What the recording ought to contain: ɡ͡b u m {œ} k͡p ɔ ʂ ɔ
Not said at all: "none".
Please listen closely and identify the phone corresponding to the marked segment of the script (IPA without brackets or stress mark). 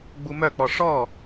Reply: œ